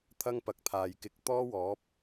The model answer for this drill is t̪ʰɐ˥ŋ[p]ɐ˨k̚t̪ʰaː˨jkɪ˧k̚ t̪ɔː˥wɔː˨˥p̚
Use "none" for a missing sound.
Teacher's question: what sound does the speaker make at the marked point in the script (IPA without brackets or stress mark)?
p